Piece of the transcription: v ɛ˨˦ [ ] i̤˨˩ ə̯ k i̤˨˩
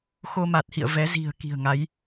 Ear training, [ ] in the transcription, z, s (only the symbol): z